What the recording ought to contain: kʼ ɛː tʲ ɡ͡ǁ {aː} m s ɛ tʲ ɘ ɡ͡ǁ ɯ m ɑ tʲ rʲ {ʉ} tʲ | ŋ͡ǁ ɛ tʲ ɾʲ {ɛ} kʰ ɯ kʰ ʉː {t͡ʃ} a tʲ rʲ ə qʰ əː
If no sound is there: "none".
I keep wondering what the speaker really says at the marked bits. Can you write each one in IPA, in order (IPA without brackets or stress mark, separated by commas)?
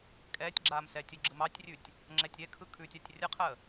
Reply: aː, ʉ, ɛ, tʲ